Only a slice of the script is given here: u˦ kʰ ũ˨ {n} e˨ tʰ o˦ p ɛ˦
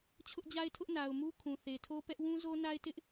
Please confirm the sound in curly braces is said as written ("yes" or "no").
no